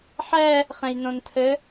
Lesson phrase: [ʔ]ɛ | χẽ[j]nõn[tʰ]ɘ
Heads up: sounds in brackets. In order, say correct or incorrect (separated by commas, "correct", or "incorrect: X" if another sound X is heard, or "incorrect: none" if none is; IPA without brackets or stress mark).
incorrect: ħ, correct, correct